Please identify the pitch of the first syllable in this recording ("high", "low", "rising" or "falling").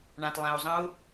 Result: low